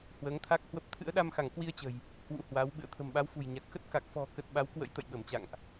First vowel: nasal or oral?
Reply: oral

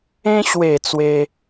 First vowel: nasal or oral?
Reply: nasal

